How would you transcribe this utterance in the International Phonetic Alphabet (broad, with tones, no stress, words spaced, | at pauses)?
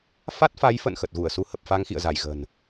fa˦˥t̚fa˨˦jfə̰˧˨n xə˨˩t̚ɣu˧˩ə̯su˨˦ hə˨˩p̚fa˧ŋxḭ˧˨ə̯za˧˩j ɣə̤˨˩n